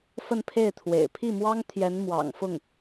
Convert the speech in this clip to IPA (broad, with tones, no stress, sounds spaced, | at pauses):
f ə˥˧ n pʰ e˥˩ ɪ̯ t̪ʰ w ḛ˨˩ ɪ̯ pʰ i˥˩ m w ɑ˥ ŋ t̪ʰ j ɛ˧˥ n m w ɑ̰˨˩ ŋ f ʊ˥˩ ŋ